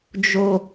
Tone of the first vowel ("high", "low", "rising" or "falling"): high